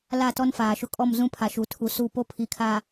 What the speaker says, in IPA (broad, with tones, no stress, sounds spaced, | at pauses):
l a˦˨ t ɔ˦ n f aː˨ ʃ ʊ˦ kʼ ɔ˦˨ m z ũ˦ pʰ a˨ ʃ u˨ tʰ u˨ s u˦˨ p o˦ pʰ i˨˦ kʰ aː˨